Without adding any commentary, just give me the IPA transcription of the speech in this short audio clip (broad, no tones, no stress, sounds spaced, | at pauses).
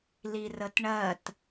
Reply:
l i r ə t ɳ ɜ t